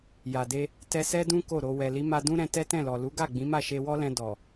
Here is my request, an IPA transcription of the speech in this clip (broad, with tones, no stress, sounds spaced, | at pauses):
j a˨ d e˧ | t ɛ˧ s ɛ˦ d ũ˦ k o˦˨ ɾ o˧ w ɛ˨ l i˨˦ m a˧ d ũ˦ ɾ ɛ̃˧ t ɛ˦ t ɛ̃˦˨ l ɔ˨ l u˨˦ ɡ a˦˨ ɡ͡b ĩ˨˦ m a˦˨ ʃ e˧ w ɔ˦ l ɛ̃˧ d ɔ˨